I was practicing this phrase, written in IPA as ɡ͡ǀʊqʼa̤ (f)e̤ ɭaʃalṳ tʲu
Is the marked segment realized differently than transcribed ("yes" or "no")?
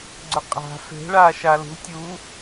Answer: no